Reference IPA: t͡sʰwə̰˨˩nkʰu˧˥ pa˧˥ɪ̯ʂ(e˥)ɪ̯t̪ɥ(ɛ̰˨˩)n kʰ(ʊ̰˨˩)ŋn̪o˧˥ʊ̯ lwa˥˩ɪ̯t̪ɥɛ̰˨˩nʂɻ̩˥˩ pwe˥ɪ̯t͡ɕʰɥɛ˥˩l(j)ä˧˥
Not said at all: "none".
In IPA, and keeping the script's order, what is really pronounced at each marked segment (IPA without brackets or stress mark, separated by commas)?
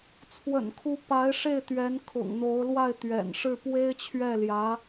e˥˩, ɛ˧˥, ʊ̰˨˩, j